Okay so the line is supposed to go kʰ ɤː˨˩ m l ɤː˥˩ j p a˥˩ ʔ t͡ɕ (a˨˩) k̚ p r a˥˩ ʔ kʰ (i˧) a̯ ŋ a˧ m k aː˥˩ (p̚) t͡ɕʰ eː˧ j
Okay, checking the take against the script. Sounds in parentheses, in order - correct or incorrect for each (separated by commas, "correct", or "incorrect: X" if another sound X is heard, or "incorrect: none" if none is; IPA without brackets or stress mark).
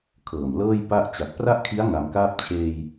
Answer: correct, incorrect: i˦˥, correct